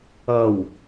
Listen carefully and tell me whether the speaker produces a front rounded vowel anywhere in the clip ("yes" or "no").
no